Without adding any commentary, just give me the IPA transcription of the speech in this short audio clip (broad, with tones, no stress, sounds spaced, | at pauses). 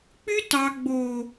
k͡p y˦ t ɑ˨ ɡ͡b o˨